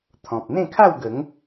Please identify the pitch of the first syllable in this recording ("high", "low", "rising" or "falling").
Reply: low